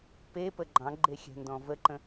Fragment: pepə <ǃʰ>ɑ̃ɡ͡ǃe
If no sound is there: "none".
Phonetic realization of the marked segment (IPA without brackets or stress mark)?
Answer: ɡ͡ǃ